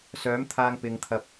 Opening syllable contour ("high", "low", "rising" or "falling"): rising